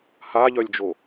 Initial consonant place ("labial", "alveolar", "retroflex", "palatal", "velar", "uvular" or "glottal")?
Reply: glottal